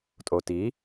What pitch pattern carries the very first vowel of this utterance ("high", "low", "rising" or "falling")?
low